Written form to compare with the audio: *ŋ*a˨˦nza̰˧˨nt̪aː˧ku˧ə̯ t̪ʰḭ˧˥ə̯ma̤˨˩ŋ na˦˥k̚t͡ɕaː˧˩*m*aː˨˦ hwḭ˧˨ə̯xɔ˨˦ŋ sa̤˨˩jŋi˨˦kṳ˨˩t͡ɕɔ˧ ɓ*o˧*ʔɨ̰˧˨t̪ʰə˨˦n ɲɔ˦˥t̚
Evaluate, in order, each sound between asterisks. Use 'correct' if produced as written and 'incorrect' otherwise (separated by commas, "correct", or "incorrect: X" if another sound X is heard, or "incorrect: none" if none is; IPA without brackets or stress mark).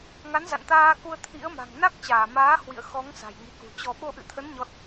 correct, correct, correct